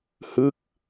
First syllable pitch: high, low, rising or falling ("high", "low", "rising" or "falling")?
falling